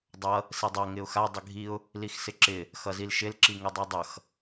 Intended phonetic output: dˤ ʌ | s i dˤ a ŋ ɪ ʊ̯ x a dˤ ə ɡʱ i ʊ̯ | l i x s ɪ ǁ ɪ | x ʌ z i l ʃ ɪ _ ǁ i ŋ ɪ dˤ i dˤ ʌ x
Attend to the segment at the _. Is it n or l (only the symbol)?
l